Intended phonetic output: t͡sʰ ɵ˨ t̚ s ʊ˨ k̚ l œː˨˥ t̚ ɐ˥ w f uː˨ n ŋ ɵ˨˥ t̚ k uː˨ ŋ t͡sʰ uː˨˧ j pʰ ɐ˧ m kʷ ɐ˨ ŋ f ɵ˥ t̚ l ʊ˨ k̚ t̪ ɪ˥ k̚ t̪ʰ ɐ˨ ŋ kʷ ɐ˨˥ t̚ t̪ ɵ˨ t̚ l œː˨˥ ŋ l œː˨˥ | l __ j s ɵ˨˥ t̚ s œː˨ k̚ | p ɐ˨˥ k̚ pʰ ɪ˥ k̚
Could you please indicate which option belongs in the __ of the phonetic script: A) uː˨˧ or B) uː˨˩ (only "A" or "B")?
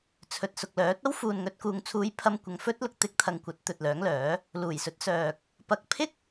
B